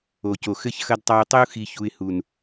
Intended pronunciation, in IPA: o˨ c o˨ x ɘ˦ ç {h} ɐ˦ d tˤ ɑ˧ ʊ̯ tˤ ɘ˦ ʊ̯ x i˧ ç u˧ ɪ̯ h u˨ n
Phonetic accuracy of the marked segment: incorrect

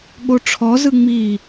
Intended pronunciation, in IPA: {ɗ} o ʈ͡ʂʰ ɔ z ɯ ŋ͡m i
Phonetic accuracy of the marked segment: incorrect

